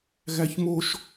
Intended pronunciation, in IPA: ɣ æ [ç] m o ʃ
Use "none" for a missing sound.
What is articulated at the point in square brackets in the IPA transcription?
ç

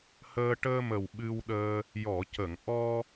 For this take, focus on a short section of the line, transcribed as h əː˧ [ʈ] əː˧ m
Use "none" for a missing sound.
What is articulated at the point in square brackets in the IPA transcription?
ʈ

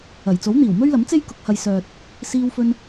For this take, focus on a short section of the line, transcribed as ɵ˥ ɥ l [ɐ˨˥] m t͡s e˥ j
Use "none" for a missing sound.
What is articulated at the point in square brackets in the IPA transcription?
ɐ˨˥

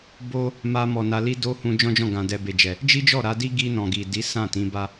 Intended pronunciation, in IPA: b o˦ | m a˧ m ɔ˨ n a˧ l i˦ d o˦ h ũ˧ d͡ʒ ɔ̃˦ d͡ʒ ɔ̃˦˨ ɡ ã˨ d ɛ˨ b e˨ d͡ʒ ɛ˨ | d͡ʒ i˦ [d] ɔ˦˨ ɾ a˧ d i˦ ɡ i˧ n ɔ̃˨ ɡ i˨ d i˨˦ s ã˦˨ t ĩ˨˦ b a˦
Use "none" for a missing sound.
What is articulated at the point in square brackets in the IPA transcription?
d͡ʒ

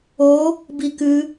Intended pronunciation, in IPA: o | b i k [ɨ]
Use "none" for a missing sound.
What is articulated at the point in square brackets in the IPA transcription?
ɨ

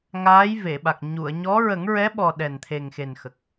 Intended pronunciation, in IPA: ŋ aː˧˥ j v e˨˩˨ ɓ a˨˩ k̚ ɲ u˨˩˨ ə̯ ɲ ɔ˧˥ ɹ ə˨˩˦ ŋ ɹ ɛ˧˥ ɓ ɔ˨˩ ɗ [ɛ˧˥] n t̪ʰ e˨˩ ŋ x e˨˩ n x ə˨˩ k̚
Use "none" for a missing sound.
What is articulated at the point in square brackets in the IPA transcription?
ɛ˨˩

